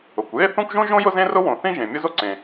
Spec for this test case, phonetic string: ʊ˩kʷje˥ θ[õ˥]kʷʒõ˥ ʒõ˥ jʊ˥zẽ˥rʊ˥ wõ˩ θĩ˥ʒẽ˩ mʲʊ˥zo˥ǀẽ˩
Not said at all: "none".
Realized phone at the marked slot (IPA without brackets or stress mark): õ˥